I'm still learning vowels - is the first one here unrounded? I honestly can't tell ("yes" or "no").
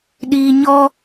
yes